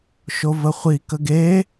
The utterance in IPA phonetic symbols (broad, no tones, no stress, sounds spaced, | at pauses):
ʃ o v ə χʷ i k ə ɡ e